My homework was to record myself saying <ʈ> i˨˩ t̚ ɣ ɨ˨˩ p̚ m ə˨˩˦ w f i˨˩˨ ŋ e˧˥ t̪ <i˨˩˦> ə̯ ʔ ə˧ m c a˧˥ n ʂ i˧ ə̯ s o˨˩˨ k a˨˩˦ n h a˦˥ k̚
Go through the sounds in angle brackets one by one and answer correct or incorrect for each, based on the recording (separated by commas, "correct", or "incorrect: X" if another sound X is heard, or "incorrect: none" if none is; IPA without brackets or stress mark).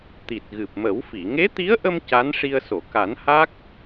incorrect: t̪, incorrect: i˧˥